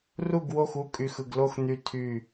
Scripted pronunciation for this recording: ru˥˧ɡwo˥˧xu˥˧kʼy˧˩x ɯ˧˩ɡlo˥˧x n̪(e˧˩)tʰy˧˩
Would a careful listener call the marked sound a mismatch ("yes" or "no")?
yes